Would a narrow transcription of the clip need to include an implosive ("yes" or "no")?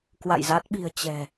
yes